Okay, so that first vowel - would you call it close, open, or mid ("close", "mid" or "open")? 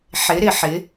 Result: close